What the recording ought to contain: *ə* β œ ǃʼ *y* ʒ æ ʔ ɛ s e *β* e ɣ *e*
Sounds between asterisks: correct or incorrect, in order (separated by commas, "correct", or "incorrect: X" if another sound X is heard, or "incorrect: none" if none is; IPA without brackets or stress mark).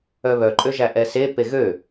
incorrect: œ, incorrect: ø, incorrect: p, incorrect: ø